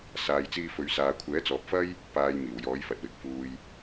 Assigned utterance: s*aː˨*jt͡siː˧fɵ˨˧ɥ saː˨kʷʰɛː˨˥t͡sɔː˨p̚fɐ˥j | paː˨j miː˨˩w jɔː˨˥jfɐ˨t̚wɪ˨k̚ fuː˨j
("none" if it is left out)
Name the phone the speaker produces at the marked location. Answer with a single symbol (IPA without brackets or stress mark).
aː˨